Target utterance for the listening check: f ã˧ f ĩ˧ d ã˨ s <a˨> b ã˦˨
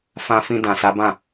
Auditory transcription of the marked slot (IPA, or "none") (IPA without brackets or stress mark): a˨˦